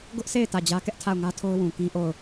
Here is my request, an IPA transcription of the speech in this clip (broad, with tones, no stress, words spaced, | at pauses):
ɡʊ˦ʔsʰe˦˨ɪ̯ tä˦˨d͡ʑä˦ kɛ˦ʔtʰa˦˨ʊ̯ŋä˦tʰo˦ʊ̯ wũ˨ kĩ˦ʔo˦˨ʊ̯